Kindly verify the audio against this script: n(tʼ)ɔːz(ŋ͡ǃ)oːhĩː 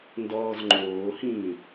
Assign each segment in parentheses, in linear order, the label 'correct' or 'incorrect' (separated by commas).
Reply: incorrect, correct